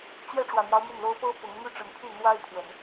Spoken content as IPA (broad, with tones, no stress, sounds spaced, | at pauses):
t͡ɕ ɥ ɛ˥˩ ʈ͡ʂ w ä˨˩ n̪ j ɑ˦ ʊ̯ m y˥˩ n l o˥ ʊ̯ p ɤ˥ p ʊ˧˥ ŋ m y˥˩ ʈ͡ʂ ə˧˥ n pʰ y˥˩ n̪ w a˥ ɪ̯ pʰ w ə˨˩˦ n